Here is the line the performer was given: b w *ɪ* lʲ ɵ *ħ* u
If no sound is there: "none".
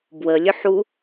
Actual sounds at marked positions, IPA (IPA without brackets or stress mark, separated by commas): ə, ħ